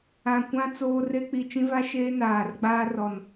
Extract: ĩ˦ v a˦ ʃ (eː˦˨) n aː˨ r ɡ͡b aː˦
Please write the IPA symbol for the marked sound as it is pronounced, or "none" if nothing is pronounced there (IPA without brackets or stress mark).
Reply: eː˦